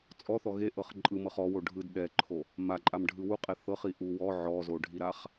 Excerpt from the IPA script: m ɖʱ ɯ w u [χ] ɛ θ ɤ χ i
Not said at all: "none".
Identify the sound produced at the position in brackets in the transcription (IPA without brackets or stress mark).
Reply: qʼ